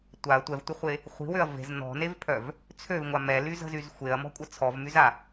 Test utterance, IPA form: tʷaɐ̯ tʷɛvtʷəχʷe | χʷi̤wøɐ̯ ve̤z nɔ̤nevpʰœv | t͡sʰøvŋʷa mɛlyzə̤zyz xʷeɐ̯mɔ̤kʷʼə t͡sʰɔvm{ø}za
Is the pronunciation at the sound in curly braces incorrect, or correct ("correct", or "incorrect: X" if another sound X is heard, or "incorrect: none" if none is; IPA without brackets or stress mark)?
incorrect: y